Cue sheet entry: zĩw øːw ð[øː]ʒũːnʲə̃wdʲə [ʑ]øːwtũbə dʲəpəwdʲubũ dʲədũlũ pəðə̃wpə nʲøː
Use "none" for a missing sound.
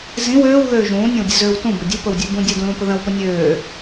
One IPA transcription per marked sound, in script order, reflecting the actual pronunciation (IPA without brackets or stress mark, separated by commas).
øː, z